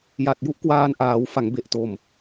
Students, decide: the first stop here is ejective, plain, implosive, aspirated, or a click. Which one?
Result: plain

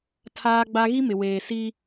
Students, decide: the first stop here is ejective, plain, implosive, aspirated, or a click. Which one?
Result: aspirated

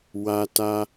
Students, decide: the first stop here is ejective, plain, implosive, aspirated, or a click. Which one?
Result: plain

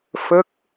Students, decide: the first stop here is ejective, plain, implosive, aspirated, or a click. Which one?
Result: plain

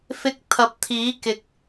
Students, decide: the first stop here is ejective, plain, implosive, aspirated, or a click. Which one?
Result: plain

